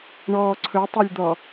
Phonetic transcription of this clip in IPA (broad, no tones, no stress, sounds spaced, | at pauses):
ɳ ɔː ǀʰ ɵ tˤ a lʲ d̪ ɔ